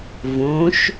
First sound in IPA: v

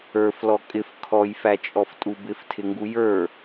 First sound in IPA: ə˞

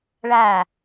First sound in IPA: ɭ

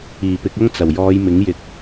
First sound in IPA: iː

